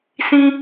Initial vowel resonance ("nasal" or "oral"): nasal